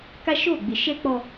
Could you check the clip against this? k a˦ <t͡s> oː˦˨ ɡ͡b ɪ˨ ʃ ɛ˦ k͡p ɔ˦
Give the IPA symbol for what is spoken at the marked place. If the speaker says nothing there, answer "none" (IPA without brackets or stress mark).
ʃ